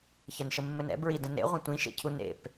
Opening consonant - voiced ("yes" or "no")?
no